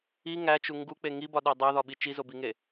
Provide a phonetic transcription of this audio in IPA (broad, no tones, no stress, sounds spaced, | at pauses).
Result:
i ŋ æ t͡ʃ u ŋ ɡ u k͡p e ŋ i b ɒ ɗ æ dˤ æ ð ɒ ɓ i t͡ʃ i z o b i ŋ e